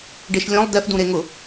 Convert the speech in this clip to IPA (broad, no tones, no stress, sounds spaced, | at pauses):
ɖ e ʃ lʲ ɔ̃ lˠ d ɛ f d ũ ɾ e ŋ ʊ